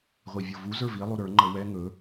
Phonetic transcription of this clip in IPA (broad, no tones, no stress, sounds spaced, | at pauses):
ʁʷ i vʲ ɤ v u z ə˞ v i lˠ u ɾ ə˞ ŋ͡ǃ ɤ w ɛ ŋ ɵ